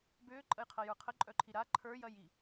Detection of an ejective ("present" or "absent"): present